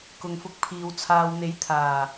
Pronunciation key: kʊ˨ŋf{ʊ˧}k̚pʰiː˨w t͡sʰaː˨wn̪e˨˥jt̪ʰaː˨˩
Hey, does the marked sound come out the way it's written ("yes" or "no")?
yes